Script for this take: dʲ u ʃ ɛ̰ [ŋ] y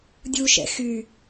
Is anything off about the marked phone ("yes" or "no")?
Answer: yes